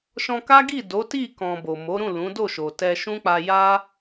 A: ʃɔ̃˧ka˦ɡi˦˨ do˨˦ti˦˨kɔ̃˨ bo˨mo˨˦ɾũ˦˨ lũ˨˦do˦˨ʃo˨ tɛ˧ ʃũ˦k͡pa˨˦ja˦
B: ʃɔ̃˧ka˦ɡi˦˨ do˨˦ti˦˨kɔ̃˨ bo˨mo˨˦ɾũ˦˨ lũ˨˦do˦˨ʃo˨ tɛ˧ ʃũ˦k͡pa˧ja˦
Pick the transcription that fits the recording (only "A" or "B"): B